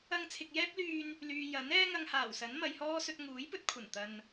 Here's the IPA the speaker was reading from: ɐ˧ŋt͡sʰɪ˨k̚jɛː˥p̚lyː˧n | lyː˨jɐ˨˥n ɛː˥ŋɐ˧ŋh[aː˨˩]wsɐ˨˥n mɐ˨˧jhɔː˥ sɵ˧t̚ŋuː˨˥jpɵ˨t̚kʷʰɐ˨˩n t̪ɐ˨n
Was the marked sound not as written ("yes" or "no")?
no